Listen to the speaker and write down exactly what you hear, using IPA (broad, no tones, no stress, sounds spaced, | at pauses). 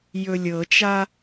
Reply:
j ɵ lʲ ɤ t͡ʃ a